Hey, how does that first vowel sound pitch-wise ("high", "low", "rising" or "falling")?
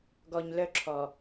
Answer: low